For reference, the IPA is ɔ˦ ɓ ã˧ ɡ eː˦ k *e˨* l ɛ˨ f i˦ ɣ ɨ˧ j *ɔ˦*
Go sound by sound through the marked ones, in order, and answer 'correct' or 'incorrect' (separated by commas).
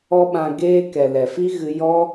incorrect, correct